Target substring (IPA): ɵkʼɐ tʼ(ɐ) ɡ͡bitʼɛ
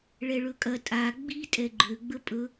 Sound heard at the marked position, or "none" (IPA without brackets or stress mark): a